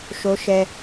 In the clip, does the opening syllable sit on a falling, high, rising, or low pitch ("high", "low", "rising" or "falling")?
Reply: high